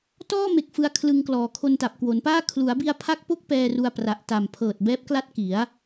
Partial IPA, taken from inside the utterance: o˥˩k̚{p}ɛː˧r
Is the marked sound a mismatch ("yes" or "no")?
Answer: no